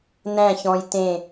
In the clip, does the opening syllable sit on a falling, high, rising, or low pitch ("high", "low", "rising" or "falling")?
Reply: falling